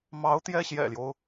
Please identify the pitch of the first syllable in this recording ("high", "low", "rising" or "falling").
rising